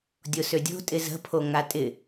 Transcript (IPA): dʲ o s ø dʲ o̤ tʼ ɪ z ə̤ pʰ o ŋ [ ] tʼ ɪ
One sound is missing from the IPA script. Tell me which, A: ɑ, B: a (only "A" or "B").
B